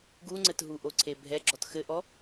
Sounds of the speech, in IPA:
ɡ u ŋ͡ǀ ɘ t ɦ u ʔ o ǀʰ e bʱ ɛ ɡ͡ǁ ɔ t x ɘ ʔ ɔ

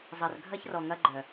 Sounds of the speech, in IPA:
zˤ ɐ˨ r ɡʱ ɐ˦ ç r ɔ˨ ŋ ɐ˦ ɡ͡ǃ œ˨

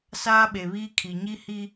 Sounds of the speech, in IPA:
s aː˦ ɓ e˨ β iː˦ kʰ i˨ ɲ i˦ h i˦

